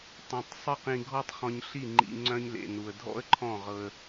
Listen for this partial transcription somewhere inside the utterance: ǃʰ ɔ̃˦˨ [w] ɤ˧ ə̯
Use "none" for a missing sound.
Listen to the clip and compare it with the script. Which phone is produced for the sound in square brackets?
ʁ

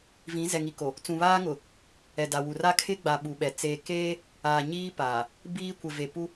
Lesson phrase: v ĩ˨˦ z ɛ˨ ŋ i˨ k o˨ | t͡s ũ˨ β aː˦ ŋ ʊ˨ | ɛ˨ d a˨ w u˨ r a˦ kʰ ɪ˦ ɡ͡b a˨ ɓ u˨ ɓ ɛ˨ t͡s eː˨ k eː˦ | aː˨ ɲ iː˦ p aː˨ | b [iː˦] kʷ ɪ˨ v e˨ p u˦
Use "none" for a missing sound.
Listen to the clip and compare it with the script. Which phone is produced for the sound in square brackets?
iː˦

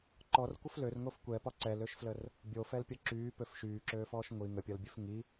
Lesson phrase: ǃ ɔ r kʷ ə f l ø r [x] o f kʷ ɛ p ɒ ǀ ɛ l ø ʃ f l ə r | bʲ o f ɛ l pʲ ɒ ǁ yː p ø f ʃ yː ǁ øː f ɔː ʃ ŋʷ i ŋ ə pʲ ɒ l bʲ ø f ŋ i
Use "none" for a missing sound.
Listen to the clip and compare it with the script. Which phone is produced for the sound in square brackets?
ŋ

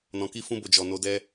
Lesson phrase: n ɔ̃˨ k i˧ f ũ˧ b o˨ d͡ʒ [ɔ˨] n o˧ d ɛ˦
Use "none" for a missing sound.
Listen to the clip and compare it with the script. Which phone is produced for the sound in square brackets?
ɔ˨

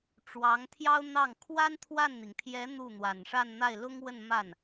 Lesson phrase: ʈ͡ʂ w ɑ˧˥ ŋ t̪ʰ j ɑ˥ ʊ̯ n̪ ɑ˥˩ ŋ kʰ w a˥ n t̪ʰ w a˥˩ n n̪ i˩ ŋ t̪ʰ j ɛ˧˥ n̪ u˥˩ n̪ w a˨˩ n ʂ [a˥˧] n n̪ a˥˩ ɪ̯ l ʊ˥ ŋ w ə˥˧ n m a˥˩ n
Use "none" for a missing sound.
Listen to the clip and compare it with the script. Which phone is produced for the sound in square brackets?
a˥˧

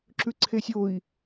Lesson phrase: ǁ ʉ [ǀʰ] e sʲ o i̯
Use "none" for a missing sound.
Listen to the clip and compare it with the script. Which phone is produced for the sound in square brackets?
ǀʰ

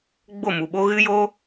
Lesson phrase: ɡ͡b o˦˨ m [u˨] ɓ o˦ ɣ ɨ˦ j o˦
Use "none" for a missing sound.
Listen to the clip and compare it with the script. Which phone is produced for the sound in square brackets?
u˨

